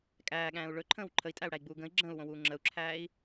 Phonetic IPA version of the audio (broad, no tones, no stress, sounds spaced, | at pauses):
kʼ æː ɠ æ̃ː u̯ ɭ ɵ ǃʰ ə̃ː w ǃʰ ə i̯ tʼ æ u̯ ɽ æ i̯ ɡ͡b uː ɡ ə̃ i̯ ɡ͡ǁ ə̃ː u̯ w õ w uː ŋ͡ǁ ə u̯ ǁʰ æː i̯